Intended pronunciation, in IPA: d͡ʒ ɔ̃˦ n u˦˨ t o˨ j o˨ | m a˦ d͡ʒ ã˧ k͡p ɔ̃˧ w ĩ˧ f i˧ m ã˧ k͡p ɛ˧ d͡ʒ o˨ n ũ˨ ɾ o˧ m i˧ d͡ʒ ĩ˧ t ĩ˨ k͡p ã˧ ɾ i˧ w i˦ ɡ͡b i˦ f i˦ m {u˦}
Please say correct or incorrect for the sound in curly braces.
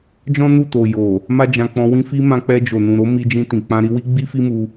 incorrect